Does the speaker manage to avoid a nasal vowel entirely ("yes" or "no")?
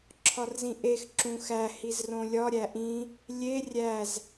no